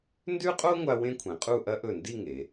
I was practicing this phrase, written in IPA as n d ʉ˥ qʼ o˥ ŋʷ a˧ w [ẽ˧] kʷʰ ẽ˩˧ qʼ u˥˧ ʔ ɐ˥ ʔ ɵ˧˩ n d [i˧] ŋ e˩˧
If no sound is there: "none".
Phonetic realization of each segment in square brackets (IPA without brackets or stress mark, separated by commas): ẽ˥, i˥˧